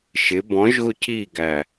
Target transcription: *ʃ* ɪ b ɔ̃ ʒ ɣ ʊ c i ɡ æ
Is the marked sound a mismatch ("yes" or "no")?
no